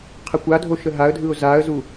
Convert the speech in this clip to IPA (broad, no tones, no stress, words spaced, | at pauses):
qʰəkʷadʱo ʃəɦaə̯dʱɯʊ̯ zaə̯zu